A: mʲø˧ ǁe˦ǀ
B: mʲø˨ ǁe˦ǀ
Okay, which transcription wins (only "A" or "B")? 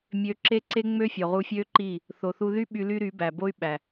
A